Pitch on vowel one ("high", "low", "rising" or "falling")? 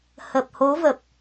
low